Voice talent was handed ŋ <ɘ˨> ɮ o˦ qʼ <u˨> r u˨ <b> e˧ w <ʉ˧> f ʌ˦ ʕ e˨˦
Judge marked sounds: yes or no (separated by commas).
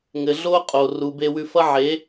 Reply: yes, no, yes, yes